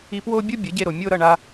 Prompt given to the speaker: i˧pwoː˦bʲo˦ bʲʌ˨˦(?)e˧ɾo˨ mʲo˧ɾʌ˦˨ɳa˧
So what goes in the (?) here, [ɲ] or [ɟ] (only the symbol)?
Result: ɟ